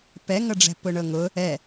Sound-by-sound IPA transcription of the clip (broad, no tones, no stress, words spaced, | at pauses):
pɛŋɤɖ͡ʐɛ̤ pʊɳɤŋʊ | ɛ